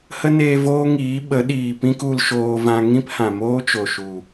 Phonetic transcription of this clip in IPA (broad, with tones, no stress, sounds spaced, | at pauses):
h ə˦ n eː˧ v oː˦ ŋ iː˨˦ ɓ ə˨˦ ɗ iː˨ p ĩ˦ k u˧ l ʃ oː˧ v ã˧ ŋ ĩ˦ p h ã˨ m oː˦ t͡ʃ o˨ ʃ u˨